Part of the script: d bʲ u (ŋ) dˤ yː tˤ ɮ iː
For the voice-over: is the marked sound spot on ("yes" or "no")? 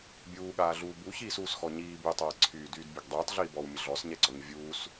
no